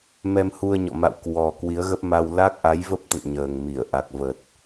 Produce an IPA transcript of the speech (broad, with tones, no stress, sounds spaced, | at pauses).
m ɛ˧ m h u˧ ə̯ ɲ ɔ̰˧˨ m a̰˧˨ w k w ɔ˨˩ k w i˨˦ ə̯ ɣ ə˦˥ p̚ m a˧ w l a˦˥ k̚ ʔ a˨˦ j v ə˦˥ p̚ t̪ ə̰˧˨ n ɲ əː˨˩ ŋ m i˧˩ ə̯ ʔ a˨˩ k̚ v ə˨˩ t̚